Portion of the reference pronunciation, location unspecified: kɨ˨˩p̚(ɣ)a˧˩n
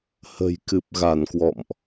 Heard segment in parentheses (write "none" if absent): ɣ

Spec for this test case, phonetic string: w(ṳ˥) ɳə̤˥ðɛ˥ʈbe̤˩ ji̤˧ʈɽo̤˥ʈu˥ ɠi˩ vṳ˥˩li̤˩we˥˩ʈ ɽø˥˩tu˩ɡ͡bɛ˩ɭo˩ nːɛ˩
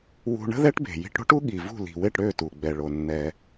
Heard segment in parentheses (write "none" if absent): ṳ˧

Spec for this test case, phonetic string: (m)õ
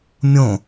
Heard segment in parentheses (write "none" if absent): mʲ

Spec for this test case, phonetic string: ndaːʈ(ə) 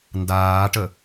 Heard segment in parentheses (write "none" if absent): ə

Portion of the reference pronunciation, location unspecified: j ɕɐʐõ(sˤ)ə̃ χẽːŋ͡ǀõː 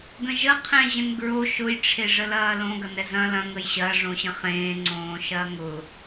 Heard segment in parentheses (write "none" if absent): ɕ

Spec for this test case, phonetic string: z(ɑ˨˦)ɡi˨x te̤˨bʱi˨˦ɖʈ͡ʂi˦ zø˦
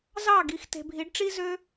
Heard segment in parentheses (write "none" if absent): ɑ˦˨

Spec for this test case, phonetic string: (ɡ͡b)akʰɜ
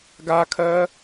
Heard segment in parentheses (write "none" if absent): ɡ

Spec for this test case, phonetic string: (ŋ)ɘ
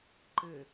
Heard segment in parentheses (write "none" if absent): ǃ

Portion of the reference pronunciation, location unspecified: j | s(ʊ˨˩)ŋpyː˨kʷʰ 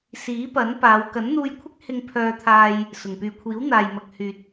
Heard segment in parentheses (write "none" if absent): ʊ˨˩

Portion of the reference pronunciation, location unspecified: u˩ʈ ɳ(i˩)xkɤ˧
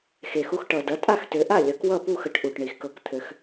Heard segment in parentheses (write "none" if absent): i˩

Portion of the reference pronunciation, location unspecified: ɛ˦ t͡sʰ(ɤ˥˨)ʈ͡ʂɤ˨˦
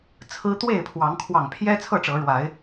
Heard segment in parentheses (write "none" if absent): ɤ˥˨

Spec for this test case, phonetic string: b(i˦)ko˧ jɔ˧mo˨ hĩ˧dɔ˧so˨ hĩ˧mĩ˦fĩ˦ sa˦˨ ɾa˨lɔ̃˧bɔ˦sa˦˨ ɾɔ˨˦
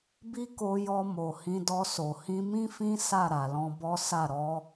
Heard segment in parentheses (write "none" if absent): i˦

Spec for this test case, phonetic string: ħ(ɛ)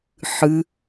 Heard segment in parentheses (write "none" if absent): ɨ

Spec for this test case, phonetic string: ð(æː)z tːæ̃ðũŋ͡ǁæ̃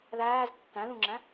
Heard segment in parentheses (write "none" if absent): æː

